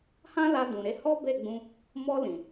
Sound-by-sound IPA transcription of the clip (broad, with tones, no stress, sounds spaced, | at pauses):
h ã˦ l a˧ d ũ˨ ɾ e˨˦ h ɔ˦ b e˦˨ ɡ͡b ũ˧ | m ɔ˧ l ĩ˨